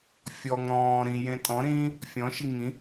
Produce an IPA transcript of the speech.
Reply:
fʲɔŋ ɾɔ̃ː ɾĩjẽ tʼɔ̃ɾĩː | fʲɔ̃ʃi ŋĩ

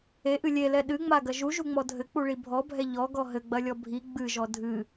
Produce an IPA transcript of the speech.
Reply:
eʔɨ lʲelɛ ɗɨŋ͡maɡɐ ʒuʒuŋ͡mɔ dʱɘk͡puɭi bʱɔbʱɛ ʎɔɡɔ ɦɘɡ͡bɐlʲɔ bʱi ɡ͡bɨʒɔ dʱɨ

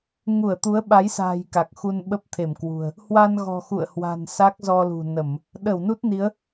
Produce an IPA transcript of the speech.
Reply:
ŋu˧˩ə̯t̪u˨˦ə̯ɓa˨˦jsa̤ː˨˩j ka˨˩k̚xu˧n ɓə˦˥p̚t̪ʰe˧˩mkwṳ˨˩ə̯ | hwa˧nɣɔ̤˨˩ xṵ˧˨ə̯hwa̤˨˩n sa˦˥k̚zɔ˧lṳ˨˩nə˧˩˨m | ɗə˧˩wnu˦˥t̚ni˨˦ə̯

